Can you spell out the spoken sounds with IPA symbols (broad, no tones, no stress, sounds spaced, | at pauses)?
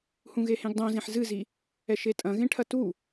h ũ ɣ e h ẽ ɡ dˤ õ z ẽ ħ z ɨ z i | ɛ ʃ e tʼ ɐ̃ ɣ ẽ ʈʰ ɐ t u